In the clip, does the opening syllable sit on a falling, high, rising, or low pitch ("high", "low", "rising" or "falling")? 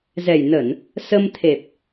low